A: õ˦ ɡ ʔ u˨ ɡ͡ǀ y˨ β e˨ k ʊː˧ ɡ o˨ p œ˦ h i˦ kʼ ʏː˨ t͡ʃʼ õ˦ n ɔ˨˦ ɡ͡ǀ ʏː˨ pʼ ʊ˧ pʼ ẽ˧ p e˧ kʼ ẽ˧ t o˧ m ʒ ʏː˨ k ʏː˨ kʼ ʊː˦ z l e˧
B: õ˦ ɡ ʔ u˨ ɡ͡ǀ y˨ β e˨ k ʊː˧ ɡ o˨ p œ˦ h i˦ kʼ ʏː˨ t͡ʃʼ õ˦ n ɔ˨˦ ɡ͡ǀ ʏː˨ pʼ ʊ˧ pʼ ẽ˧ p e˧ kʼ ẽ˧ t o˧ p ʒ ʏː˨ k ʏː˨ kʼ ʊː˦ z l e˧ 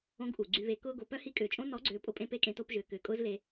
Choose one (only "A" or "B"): B